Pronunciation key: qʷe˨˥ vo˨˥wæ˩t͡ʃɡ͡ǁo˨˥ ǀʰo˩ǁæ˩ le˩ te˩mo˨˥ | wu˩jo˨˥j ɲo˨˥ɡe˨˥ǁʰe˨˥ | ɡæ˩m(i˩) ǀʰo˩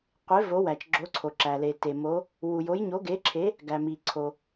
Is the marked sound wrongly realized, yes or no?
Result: no